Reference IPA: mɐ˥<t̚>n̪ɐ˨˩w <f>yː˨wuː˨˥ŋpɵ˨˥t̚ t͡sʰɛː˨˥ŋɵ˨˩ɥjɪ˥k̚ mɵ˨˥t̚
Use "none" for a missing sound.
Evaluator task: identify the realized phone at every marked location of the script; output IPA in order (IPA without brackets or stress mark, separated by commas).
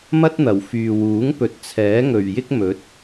t̚, f